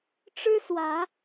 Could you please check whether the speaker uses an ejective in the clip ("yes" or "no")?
no